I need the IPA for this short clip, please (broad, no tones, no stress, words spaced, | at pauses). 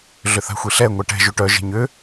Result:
ɮʏθa̤xʷiɬɛ ŋʷɛʈɛ̤ ʒuʈœ ʒe̤ɲʏ